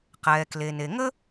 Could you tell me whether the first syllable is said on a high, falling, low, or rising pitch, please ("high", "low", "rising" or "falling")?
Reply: low